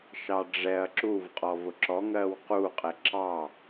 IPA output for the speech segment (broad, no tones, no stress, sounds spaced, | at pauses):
ʃ ɑ ɖ͡ʐ ɛ ɐ̯ ǁ u v qʼ ɔ v ʊ ǁ ɔ ŋ ɜ w q u qʼ ɛ ǁ ɑ